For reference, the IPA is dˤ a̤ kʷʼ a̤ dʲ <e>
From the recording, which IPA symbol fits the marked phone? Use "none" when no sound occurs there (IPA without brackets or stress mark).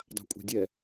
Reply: ɛ